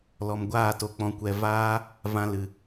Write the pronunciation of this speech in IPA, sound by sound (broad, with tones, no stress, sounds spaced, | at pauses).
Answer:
l ɔ˧ m ɡʷ aː˦˨ t o˧ k͡p ɔ̃˧ kʷ ɛ˧ v aː˦ | v ã˧ l ɨ˨